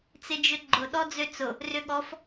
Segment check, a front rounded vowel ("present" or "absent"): present